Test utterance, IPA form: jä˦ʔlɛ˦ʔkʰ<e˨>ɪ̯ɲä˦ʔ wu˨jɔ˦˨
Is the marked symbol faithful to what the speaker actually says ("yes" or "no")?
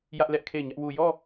no